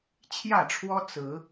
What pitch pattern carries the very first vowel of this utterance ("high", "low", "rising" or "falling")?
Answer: falling